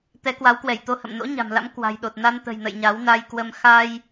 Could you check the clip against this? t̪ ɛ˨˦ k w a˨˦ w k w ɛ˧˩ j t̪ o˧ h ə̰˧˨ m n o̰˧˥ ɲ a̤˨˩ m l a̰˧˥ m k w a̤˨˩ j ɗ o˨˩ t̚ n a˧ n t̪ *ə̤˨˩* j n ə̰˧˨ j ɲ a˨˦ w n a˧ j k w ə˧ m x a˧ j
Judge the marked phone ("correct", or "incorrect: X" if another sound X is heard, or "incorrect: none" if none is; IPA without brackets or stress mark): correct